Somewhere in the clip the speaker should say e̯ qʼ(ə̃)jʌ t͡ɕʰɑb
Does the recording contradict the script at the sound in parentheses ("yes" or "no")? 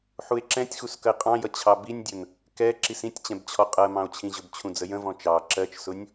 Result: yes